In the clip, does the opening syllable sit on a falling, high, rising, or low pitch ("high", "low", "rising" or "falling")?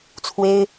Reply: high